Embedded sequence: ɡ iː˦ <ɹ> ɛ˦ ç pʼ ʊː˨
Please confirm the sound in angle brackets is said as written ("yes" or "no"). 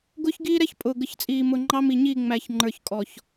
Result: no